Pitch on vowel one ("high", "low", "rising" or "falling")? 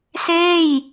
falling